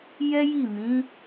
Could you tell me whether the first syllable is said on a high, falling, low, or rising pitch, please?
high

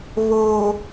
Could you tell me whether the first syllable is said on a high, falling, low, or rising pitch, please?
low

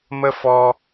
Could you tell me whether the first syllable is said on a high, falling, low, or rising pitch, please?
high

